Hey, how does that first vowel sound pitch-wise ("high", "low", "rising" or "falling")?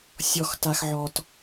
low